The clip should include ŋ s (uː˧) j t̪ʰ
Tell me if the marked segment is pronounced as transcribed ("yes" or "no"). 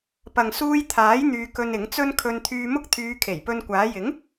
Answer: yes